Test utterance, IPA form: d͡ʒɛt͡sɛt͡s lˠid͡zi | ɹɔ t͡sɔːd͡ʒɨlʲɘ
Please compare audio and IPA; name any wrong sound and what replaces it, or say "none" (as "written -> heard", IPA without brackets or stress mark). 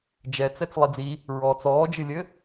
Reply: none